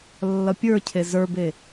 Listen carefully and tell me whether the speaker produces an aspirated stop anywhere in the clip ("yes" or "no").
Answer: yes